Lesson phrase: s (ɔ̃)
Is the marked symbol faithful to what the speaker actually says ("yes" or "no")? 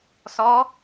no